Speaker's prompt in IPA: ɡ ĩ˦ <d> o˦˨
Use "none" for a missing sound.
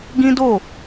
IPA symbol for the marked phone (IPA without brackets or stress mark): d